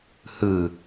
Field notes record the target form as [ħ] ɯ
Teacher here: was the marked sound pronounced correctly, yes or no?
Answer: no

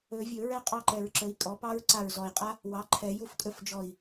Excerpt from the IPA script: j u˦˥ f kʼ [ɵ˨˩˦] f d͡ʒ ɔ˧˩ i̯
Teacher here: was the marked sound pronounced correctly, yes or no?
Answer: no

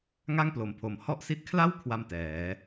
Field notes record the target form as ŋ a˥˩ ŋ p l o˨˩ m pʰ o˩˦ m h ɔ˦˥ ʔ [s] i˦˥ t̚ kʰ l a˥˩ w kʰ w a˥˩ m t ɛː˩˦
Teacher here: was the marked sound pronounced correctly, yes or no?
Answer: yes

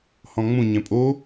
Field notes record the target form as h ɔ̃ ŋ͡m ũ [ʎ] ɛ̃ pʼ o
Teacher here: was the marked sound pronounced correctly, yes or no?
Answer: no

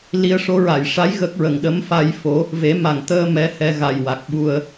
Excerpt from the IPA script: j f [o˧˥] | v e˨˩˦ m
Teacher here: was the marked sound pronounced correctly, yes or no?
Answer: yes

